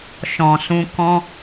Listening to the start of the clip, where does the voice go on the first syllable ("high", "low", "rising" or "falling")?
low